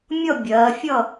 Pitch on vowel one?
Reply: falling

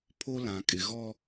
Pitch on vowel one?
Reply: high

